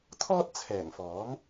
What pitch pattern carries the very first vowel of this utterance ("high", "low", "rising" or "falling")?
high